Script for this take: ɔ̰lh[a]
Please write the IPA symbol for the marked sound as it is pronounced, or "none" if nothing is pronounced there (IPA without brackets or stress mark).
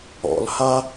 a